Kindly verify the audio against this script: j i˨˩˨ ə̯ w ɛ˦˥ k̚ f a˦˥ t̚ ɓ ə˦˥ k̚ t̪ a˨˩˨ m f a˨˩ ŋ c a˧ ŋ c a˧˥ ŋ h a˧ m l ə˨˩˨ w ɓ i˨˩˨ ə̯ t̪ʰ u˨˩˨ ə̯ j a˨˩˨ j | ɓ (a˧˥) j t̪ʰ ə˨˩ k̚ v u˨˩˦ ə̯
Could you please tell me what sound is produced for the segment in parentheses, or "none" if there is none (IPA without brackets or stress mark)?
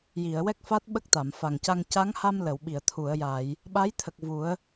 a˧˥